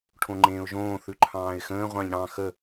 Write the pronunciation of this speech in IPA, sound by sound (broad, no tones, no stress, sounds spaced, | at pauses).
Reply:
ʈʰ õ ŋ͡ǃ ẽː ʊ̯ ʒ õː θ ʉ ǃʰ ɑ̃ː ɪ̯ x ə̃ː ʁʷ ɑ̃ ʎ ɽ ɑ̃ x ə